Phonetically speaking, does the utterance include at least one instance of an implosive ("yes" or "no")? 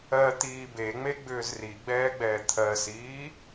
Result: no